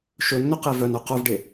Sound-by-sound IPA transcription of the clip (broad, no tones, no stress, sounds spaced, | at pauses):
ʃ ɵ nː ɵ q e v œ n œ q œ v ɖ e